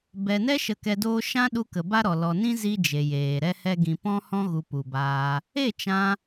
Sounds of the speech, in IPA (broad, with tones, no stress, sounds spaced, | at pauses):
b ɛ˨ n ɛ˦ ʃ ə˧ k ɛ˧ d oː˦ ʃ ã˦ ɗ u˧ k ə˨ b a˦ ɾ ɔ˨ l ɔ˨ n ĩ˦ z i˦ d͡ʒ e˨ j eː˨ ɾ ɛ˦ h ɛ˦ ɡ ĩ˧ p ɔ̃˦ h ɔ̃˦ ɣ u˧ p u˨ b aː˧ | e˦˨ t͡ʃ ã˧